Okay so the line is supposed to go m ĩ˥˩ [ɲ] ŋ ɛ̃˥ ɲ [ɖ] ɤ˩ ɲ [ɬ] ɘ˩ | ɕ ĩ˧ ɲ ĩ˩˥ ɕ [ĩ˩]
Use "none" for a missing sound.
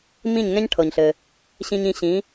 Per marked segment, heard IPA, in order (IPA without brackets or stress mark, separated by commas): ɲ, ʈʰ, ɬ, ĩ˩˥